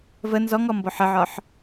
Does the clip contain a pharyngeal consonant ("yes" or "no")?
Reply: yes